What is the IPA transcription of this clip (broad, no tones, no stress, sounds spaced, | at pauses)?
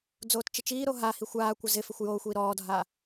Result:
d͡z oː t t͡ʃ ɪ t͡ʃ iː ɾ o ɦ a h i xʷ aː kʷ ɪ z ɪ f ɪ xʷ j oː xʷ iː ɾ ɔː dʱ aː